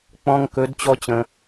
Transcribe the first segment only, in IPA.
k͡p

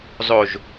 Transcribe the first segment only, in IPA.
zˤ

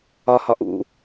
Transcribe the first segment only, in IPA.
ɒ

